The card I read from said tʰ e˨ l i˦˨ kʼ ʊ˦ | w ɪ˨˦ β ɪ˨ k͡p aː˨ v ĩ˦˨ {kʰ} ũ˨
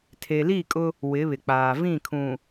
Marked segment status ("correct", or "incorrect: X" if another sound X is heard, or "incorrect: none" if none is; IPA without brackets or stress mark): correct